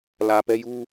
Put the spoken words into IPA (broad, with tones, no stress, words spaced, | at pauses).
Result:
lä˨pɛ˦ju˦